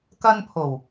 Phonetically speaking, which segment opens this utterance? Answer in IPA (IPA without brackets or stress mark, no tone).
k